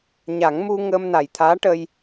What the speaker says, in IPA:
ɲ a˨˩˦ ŋ m u˧ ŋ əː˧ m n a˨˩ j t̪ʰ aː˧˥ ʈ ə˧ j

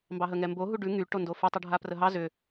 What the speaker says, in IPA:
m b ɑ ɦ ə ŋ ɛ m b o ɦ u ɖ ʉ ŋ y ʈ o n d o f y tˤ u ɖʱ a p r ə ɦ ɑ z ʏ

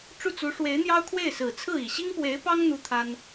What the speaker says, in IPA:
ʈ͡ʂ u˥˩ t͡s u˧˥ ʂ w e˧˥ ɪ̯ n̪ j ɑ˥ ʊ̯ kʰ w e˥˩ ɪ̯ s ɹ̩˨˩ t͡sʰ ɹ̩˥˩ i˨˩ ɕ i˥ ŋ p w e˧˥ ɪ̯ p ɑ˥ ŋ n̪ u˥ t̪ʰ a˥ n

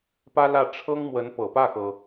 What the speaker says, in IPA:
p ä˥ l ä˥˩ ʈ͡ʂʰ ɤ˥ ŋ m w ə˧˥ n p ɤ˨˩ p ä˥˩ x ɤ˩

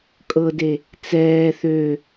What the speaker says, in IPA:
kʼ ɤ d e | t͡s ɛː θ ø

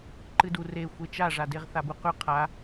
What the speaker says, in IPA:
ǃ ɨ d u r e xʷ e t͡ʃ a ʐ a d e ʁ θ a b u q ʉ qʰ a

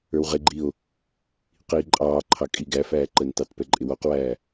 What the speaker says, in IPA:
ə˞ w ʁ ɪ ɡ͡ǃ i o̯ | q iː ǃʼ ɑː ǃʰ ɑ kʼ i ɡ æ f æː ǃ ə n t ɑ t p ɛ ǃʼ ɪ w ɔ q w æː

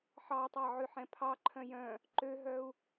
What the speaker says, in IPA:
ħ ɑ tˤ ɑ ʕ ʉ ħ ɛ̃ pʰ ɑ ǃʰ œ̃ j œ̃ | ǃ ø ɦ œ u̯

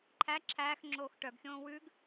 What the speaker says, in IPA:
ǃʰ æ ǁʰ æː x ŋ͡ǁ oː x ʈ œ ɡ xʲ õː w ʉ ɡ

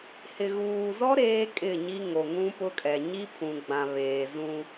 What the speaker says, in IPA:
h ɪ˨ ɣ uː˨ z ɔ˦ ɾ eː˦ kʼ ɪ˦˨ ɲ i˦ ŋ o˨ ŋ ũ˦ p ʊ˦ kʼ ɛ˨ ɲ i˦ pʰ ũ˨ ɡ͡b ã˨ β eː˨ z ũ˦

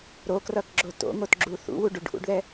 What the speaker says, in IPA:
ɾ o k r ʌ k ɡ͡ǁ o t o̰ ŋ o t ɡ͡ǁ u θ ṵ w u ɖ u ɖ ʔ ṵ ɖ ð ɛ

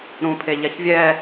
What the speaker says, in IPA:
ɾ ũ pʰ e ʎ ɛ ç vʲ ɛ

